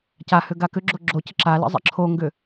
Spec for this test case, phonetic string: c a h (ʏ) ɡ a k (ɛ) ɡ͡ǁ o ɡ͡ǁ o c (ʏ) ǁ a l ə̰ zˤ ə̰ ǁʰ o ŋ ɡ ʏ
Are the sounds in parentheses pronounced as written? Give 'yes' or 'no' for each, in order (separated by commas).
yes, no, no